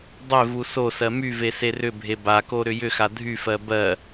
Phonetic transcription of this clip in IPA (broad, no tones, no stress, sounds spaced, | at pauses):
dˤ e v u s o s ɜ m y v e s e r ʏ bʱ e b a k o ɾ ʏ j ʏ x a dʱ y f ɜ b ɜ